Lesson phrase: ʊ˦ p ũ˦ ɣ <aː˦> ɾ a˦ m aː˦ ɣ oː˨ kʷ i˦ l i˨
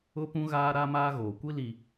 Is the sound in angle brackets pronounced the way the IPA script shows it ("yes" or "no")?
yes